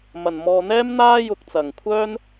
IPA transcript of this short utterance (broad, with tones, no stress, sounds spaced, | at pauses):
m ɐ˨ n m ɔː˧ n̪ ɛː˥ m n̪ aː˥ j ʊ˧ k̚ t͡s ɐ˨ ŋ kʷʰ œː˥ n